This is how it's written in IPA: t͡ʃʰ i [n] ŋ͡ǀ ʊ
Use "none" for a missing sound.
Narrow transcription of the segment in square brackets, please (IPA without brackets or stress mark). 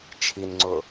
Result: n